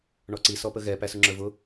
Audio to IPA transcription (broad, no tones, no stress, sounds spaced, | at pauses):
ɳ ɔ ǀ i s ɔ p ə ɣ ɛ p æ s ʊ ŋ͡ǁ ə˞ v ʊ